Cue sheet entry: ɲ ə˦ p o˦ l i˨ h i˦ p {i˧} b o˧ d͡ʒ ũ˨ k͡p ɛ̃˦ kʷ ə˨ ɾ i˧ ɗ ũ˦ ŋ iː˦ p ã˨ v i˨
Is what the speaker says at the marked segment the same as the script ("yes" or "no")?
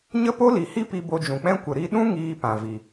yes